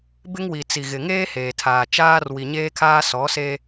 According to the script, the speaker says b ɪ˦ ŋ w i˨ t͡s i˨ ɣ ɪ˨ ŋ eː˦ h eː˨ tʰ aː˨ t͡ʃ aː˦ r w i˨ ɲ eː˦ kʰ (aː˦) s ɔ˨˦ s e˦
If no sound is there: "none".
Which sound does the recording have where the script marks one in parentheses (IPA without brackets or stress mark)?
aː˦